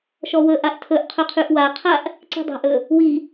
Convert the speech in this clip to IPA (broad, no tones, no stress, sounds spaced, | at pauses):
ʃ ɔ w ɵ ʔ a ʔ tʰ ɵ ʔ qʰ ɵ qʰ ʉ ʔ w a qʰ a ʔ | ǀ i̤ dˤ a̤ ʔ ɵ | w i